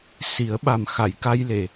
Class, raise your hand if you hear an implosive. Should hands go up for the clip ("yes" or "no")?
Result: yes